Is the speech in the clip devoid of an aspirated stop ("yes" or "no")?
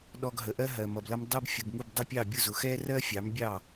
yes